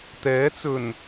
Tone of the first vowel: rising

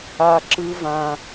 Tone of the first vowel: high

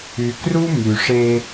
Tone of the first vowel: low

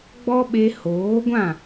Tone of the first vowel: high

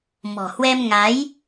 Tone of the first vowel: low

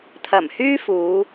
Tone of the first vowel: low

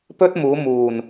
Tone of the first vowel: high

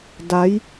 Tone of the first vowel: rising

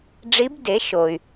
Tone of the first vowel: rising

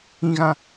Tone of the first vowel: high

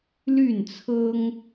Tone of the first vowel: falling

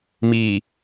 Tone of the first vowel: low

